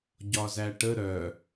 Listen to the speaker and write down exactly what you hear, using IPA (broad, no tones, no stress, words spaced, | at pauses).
ɟɒzæʈə ɾœ